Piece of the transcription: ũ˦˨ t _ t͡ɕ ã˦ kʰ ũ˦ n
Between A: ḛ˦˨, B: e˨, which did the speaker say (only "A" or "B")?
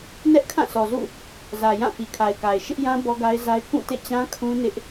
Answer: A